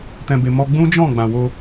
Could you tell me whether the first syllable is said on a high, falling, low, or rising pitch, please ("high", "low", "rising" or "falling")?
low